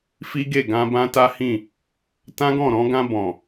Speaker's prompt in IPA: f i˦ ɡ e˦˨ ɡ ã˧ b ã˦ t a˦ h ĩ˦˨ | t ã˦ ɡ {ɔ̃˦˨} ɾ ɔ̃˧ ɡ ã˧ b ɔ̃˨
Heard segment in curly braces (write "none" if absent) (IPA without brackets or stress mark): ɔ̃˦˨